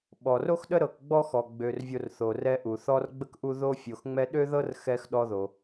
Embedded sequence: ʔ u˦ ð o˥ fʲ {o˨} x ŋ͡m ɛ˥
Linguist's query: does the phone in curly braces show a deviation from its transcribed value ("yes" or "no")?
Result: no